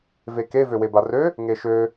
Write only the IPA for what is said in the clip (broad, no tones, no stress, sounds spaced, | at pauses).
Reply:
v e k e v ø w e b a r ø | ŋ e ʃ ø